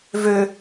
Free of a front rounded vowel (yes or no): no